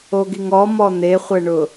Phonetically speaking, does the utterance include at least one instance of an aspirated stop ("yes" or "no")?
no